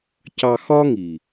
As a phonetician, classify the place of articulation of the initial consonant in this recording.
palatal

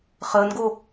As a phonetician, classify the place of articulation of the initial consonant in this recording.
uvular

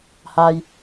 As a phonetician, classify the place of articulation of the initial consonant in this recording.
glottal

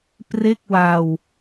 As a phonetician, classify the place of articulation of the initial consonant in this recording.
labial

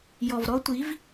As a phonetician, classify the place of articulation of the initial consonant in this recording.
palatal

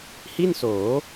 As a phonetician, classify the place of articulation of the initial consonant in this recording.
glottal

